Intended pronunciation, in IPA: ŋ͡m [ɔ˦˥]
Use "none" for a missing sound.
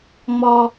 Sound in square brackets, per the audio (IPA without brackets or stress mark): ɔ˨